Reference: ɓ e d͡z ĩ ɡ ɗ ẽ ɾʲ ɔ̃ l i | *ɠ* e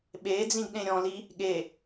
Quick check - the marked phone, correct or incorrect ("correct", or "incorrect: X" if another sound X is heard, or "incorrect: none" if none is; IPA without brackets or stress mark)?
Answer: correct